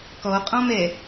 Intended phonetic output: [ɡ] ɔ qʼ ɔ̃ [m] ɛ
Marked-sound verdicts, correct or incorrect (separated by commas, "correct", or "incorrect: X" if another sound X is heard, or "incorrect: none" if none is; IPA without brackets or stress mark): incorrect: k, correct